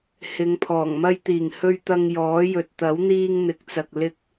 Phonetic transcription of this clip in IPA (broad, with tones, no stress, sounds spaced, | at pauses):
h ɪ˨˧ ŋ pʰ ɔː˨˩ ŋ m ɐ˧ j t̪ iː˨˩ ŋ h ɵ˧ ɥ t̪ ɐ˧ ŋ j ɔː˨˥ j ɵ˨ t̚ t̪ ɐ˨˥ w n̪ iː˧ ŋ n̪ ɪ˨˥ k̚ t͡s ɐ˨ k̚ l ɪ˧ k̚